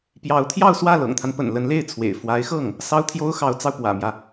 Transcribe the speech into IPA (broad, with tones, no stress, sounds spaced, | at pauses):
p j ɑ˧˥ ʊ̯ t̪ʰ j ɑ˥˧ ʊ̯ s w ä˥˩ l ɤ̰˨˩ ŋ t̪ʰ a˦ n p ə̰˨˩ n l ə˧˥ n l e˥˩ ɪ̯ t͡sʰ w ḛ˨˩ ɪ̯ f w a˧˥ ɪ̯ x ɤ˥˩ ŋ | s ɑ˥ ʊ̯ t̪ʰ j o˥ ʊ̯ x ɑ˧˥ ʊ̯ t͡s ɑ˧ ʊ̯ p w ä̰˨˩ m j ä˦